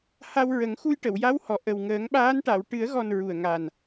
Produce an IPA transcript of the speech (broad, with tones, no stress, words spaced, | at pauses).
ha˧wɹə˨˩˦ŋxu˧j ʈə˨˩˨wja˧˥w hɔ˨˩ ʔə˨˩wŋəː˨˩˦ŋɓaː˧˥n ʈa˨˩˨wʈɨ˨˩˦ə̯ɣɔ˨˩n ɹu˨˩ə̯ ŋa˨˩n